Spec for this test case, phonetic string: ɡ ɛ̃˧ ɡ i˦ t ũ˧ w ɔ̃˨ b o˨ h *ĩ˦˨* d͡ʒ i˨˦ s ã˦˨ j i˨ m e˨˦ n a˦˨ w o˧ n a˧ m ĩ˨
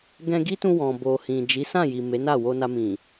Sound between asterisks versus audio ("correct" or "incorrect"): incorrect